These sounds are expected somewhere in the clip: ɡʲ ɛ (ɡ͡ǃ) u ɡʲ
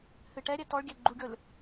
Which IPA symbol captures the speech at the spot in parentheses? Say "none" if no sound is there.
ɡ͡ǃ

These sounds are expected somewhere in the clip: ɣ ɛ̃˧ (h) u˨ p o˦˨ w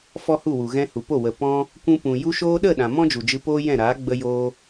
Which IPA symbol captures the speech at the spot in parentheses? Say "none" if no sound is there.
h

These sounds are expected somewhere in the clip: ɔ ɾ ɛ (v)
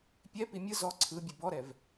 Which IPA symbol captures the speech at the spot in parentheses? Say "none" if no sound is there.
v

